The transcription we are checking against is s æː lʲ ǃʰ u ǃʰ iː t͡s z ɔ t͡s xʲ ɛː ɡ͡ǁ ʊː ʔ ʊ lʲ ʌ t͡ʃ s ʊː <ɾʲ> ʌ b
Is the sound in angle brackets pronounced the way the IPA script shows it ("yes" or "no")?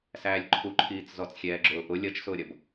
yes